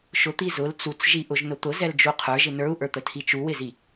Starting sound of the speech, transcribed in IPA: ʃ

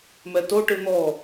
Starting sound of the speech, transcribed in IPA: m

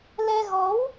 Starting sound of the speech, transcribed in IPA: l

